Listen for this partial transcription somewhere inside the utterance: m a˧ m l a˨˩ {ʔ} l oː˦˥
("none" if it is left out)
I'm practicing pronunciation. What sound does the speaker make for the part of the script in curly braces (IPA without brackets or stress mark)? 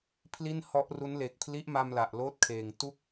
ʔ